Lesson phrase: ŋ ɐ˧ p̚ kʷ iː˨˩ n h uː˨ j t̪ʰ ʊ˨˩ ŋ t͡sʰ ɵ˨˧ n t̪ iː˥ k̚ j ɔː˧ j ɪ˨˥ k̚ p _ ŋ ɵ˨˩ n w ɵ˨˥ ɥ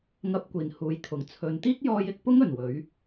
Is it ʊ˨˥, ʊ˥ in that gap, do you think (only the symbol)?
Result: ʊ˥